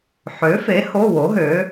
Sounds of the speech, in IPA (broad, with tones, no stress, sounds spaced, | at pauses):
ħ ø˨˥ f e˨˥ h o˧˥˧ w o˨˥ ɦ ø˨˥